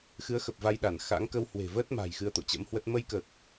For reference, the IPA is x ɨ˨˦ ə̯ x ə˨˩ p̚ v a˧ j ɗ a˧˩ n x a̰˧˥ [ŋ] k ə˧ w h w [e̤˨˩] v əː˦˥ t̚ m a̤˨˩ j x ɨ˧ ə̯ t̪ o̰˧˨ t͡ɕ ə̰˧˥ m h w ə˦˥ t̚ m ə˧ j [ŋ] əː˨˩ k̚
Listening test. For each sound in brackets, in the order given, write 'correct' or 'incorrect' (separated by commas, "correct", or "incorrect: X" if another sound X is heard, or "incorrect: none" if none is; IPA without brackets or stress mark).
correct, correct, incorrect: k